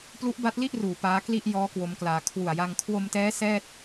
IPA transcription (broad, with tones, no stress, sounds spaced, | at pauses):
p l u˦˥ ʔ b a˦˥ t̚ l i˥˩ ʔ r uː˨˩ p aː˦˥ k l i˥˩ ʔ j ɔː˦˥ k w o˦˥ m k l aː˧ kʰ w u˨˩ a̯ j a˧ ŋ kʰ w o˧ m t ɛː˦˥ s ɛː˥˩ t̚